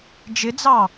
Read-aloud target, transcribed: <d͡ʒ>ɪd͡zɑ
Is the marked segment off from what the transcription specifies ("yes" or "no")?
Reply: no